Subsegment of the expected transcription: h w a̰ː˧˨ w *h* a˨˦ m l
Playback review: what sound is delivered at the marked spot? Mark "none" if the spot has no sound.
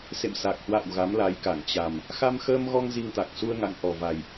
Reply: ɣ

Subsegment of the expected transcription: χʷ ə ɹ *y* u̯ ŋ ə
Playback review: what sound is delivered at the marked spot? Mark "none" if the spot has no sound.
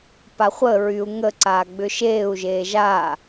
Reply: y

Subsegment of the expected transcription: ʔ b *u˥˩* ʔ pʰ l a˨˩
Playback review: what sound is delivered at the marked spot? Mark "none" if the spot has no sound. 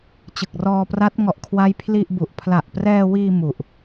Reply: u˨˩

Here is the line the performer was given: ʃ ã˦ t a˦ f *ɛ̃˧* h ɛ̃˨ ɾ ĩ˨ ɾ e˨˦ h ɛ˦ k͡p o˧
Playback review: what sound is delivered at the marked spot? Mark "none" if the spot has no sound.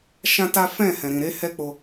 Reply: ɛ̃˦˨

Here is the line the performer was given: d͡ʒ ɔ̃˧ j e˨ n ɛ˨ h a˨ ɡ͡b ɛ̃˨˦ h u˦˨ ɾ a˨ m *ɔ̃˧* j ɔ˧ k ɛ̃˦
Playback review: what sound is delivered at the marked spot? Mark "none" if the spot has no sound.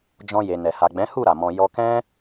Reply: ɔ̃˧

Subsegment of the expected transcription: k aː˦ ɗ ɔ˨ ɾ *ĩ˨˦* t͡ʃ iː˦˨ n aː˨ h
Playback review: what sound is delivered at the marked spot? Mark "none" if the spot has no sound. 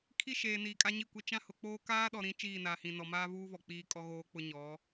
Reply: ĩ˨˦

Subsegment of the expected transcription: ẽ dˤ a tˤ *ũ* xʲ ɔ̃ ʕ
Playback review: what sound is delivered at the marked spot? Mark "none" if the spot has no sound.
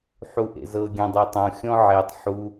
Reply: õ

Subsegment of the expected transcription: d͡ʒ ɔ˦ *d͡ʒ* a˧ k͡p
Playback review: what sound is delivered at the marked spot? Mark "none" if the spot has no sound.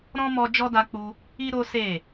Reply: d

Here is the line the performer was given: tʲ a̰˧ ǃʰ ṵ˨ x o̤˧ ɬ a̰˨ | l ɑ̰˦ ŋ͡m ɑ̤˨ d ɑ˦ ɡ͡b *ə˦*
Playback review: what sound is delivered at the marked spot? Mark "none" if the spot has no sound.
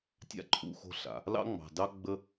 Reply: ə˦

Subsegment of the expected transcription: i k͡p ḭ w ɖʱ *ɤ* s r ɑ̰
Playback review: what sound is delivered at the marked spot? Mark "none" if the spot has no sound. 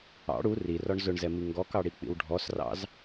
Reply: ɔ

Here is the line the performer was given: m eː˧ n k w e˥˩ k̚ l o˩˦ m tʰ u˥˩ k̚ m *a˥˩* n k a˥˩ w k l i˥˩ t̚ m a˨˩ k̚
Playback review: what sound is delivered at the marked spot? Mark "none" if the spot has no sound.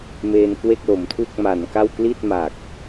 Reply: a˩˦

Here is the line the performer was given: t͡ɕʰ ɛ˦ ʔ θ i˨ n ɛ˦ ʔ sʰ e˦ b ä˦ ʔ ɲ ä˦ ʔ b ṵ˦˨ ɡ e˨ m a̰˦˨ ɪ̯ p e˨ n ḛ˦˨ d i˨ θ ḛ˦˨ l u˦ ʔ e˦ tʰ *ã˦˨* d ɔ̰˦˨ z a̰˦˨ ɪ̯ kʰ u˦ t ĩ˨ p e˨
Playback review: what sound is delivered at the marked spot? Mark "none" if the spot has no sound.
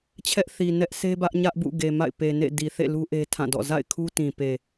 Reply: ã˦˨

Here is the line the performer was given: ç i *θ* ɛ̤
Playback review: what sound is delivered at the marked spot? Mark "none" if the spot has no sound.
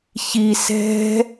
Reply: s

